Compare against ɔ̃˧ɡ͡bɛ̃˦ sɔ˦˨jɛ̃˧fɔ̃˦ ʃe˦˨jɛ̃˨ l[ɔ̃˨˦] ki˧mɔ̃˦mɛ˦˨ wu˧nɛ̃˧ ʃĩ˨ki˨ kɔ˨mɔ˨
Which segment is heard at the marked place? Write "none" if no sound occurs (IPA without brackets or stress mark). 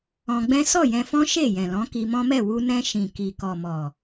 ɔ̃˨˦